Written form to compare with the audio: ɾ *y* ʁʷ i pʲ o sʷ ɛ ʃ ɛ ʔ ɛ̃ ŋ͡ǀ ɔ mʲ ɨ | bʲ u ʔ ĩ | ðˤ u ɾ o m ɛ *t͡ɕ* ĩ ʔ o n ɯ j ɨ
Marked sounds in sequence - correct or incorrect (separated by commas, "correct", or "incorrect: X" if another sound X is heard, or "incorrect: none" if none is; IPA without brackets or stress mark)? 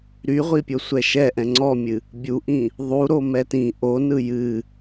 correct, incorrect: t